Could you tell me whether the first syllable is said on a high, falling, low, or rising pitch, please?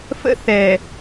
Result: high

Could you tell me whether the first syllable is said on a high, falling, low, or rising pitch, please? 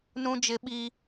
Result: high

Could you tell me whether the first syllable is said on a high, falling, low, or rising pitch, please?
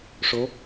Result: rising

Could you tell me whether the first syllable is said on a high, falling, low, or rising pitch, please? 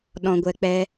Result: low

